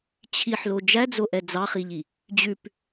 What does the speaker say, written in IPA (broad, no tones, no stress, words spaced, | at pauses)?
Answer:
t͡ɕʰiħlo d͡ʒæd͡zoʔɛ d͡zɑχiʎi | d͡ʑʉp